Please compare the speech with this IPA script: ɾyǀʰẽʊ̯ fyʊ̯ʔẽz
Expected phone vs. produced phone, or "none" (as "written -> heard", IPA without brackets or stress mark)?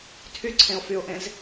ɾ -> tʰ